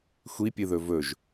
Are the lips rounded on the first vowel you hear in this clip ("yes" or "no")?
no